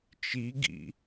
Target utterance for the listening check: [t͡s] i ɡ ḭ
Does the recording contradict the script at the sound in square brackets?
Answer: yes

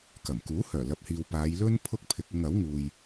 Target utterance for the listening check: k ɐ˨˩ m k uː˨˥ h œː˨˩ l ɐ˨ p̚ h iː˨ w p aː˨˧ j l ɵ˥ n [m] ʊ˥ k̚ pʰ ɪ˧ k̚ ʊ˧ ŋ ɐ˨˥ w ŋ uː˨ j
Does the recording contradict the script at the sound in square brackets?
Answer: yes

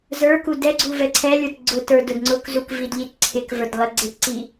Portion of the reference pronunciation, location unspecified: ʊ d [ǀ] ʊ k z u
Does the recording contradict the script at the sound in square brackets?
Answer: yes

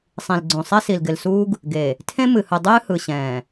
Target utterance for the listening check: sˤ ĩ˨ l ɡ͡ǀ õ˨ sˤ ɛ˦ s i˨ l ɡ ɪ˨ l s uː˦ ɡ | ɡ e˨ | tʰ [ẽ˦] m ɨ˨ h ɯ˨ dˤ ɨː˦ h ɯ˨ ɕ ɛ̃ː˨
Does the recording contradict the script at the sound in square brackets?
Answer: no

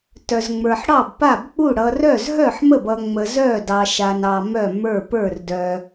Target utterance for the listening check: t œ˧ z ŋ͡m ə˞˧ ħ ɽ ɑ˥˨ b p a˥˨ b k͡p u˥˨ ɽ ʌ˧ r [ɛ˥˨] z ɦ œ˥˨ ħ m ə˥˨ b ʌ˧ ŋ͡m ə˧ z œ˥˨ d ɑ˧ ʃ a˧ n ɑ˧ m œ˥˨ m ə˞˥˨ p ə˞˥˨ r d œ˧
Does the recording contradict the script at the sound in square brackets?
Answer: yes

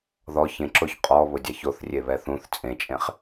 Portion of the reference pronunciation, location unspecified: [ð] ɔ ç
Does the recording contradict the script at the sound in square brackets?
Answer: no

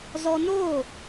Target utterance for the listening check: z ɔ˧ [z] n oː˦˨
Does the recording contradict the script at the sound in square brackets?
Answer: yes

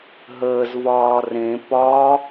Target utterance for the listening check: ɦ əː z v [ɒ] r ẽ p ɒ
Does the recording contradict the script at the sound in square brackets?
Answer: yes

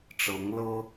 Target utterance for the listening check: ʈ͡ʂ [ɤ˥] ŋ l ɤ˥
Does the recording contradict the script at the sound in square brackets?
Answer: yes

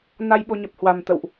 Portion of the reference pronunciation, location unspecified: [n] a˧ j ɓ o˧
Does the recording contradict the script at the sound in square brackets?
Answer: no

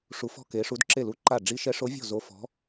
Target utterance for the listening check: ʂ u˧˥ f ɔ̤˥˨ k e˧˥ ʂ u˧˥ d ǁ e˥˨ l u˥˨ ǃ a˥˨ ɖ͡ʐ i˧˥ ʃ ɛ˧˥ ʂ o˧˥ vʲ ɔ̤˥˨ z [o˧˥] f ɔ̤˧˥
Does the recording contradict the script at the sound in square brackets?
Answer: no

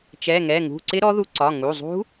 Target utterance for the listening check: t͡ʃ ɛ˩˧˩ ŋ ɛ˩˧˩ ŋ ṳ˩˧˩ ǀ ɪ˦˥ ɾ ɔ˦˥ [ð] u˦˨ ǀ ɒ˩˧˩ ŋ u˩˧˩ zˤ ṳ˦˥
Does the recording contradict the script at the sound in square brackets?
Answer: no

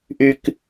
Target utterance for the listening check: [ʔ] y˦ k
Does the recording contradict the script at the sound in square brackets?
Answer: no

